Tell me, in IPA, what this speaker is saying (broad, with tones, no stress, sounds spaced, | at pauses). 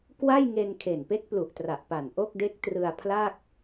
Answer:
k w a˥˩ j ŋ e˧ n kʰ e˨˩ n p e˦˥ k̚ p l u˨˩ ʔ t r a˨˩ ʔ p a˨˩ n ʔ o˥˩ k̚ d e˦˥ k̚ t r ɯ˧ a̯ pʰ l a˥˩ k̚